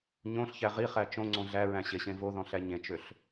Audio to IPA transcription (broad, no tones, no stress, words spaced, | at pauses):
ɲõɬçæ ʁiχæ t͡ʃõŋ͡ǀõ ɮæɹæ̃ɕeɕẽ voðɔ̃ɬæ ɲẽt͡ʃøɬ